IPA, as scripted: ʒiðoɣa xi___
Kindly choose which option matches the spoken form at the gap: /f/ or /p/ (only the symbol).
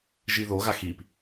p